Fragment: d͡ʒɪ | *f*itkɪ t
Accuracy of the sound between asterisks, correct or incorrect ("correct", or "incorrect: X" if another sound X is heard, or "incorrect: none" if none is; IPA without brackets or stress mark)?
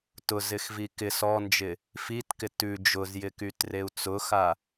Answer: correct